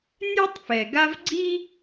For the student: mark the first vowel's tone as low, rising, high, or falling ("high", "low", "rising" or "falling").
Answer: high